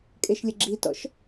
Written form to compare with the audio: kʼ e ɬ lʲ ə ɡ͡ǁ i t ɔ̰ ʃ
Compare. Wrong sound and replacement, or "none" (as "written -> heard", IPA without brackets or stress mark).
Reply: ɬ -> ʃ